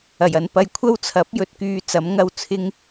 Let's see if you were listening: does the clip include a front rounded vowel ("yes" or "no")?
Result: yes